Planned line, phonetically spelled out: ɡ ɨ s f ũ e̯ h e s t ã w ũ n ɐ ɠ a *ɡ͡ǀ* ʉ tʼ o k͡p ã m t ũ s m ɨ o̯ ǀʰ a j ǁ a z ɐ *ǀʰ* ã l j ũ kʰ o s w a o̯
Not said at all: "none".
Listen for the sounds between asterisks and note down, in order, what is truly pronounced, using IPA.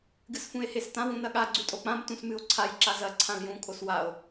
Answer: ɡ͡ǀ, ǀʰ

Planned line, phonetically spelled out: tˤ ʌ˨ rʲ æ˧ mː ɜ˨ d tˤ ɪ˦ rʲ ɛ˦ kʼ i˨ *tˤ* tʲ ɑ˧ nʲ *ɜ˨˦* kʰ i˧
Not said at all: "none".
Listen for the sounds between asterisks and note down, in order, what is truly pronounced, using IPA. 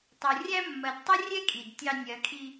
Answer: d, ɜ˨˦

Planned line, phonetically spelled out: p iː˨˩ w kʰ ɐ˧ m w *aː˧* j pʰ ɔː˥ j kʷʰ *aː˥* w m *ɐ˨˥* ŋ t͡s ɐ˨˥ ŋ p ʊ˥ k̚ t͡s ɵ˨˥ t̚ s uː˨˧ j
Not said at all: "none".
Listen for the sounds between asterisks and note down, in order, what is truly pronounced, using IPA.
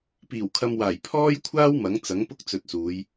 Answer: aː˨˩, aː˥, ɐ˨˥

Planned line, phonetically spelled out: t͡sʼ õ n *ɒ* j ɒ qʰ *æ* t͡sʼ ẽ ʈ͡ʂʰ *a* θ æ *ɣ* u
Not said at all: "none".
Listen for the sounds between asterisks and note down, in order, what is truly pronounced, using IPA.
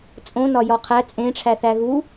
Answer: ɒ, æ, æ, ɣ

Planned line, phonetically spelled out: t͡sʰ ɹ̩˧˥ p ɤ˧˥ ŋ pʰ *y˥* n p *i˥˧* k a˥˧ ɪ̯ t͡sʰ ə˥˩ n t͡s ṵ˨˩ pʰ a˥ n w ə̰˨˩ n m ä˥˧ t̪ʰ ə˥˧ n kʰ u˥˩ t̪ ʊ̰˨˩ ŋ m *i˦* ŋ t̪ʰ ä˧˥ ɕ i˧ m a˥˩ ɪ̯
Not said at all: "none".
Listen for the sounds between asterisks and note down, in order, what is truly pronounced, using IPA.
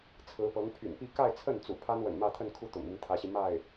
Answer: y̰˨˩, i˥˧, i˦

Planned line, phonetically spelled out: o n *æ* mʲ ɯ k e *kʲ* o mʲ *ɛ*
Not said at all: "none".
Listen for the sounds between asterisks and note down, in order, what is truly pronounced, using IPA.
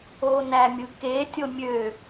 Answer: æ, tʲ, ø

